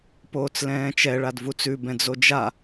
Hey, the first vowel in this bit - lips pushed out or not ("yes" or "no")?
yes